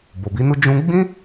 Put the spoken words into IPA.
b o˨ b i˨˦ n u˦ d͡ʒ ũ˧ ɡ͡b ĩ˦

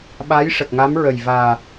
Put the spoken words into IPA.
ɓ a˧˥ j ʂ ə˨˩ k̚ ŋ a˧˥ m ɹ ə˨˩ j v aː˨˩

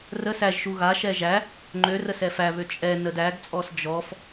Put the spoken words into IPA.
r ə s æ ʒ ʃ u ɣ a ʃ ɛ ʒ æ | ŋ͡ǃ ø r ə s ɛ f æ β ø t͡ʃʼ ɛ n ə d æ ɡ t͡sʼ ɔ s d͡ʒ ɔ f

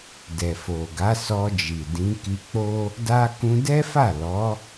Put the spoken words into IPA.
d ɛ˨ f o˨ ɡ a˨˦ s ɔ˧ d͡ʒ i˨ d ĩ˨˦ k i˧ k͡p o˦ | d a˦ k ũ˧ d ɛ˦ f a˦˨ l ɔ˨˦

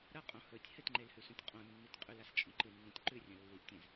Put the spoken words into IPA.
ɾ ɐ qʼ õ h ɵ tʲ h ɨ t ŋ͡ǃ e l h ʉ s ũ tʲ qʼ õ nː i t qʼ ʉ l a s t͡ʃʼ õ ǃ ɨ nː ũ tʲ ǃ ʉ rʲ ɐ̃ lː i ʔ tʲ ẽ z

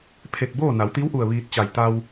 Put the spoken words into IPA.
pʰ e˧˩ k̚ b oː˥˨ n a˩˧ w t̪ i˧˥ w ʔ u˧˩ ə̯ ʋ iː˧ t̚ t͡ɕ a˧˩ j t̪ a˧ w

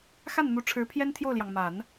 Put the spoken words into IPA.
x a˥˩ n n̪ u˧˥ ʈ͡ʂʰ ɻ̩˧˥ pʰ j ɛ˥ n t̪ʰ j o˥˩ ʊ̯ l j ɑ˩ ŋ m a˨˩˦ n

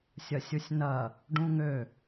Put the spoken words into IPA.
sʲ ɐ sʲ u sʲ n ɐ | ɖ ũ ŋ ø

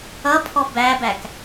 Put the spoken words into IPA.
ʌ pʰ ɔ b æ b æ k

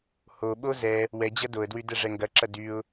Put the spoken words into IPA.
h o ɓ o z ɛ | w ɛ d͡ʑ ɐ d o ə̯ d w y d ɛ ʐ ɛ ŋ ɡ ɐ ǁ ɐ d y ʊ̯

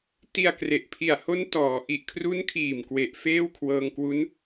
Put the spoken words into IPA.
t i˧ a̯ k r e˨˩ ʔ pʰ i˨˩ a̯ h o˦˥ n t ɔː˩˦ ʔ i˨˩ ʔ kʰ r u˦˥ n kʰ iː˨˩ m k w e˨˩ ʔ f eː˥˩ w kʰ w ɤː˧ ŋ k w u˦˥ n

